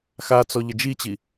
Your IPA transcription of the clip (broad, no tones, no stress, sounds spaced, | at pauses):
x a t͡s ɔ ʎ ə d͡ʒ i t͡ɕ i